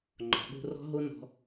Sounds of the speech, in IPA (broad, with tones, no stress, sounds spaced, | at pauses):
ŋ͡ǃ ɔ̤˩ ɓ o̤˦ r ɔ̤˥ ɦ o˥ n ɔ̤˥